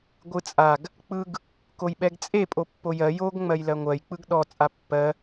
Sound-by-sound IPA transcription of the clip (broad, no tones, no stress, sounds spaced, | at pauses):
ɡʷ ɯ t͡sʼ a ɡ | k͡p ɯ ɡ | k o j ɓ ɛ ɡ t͡sʼ e pʼ o pː o j ɜ j o ɡ ŋ͡m ɜ j l ɜ ŋʷ ɜ j k͡p ɯ ɡ ɗ ɔ t͡sʼ a pː ɜ